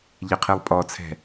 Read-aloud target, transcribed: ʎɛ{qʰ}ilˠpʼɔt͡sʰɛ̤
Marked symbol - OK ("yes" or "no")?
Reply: yes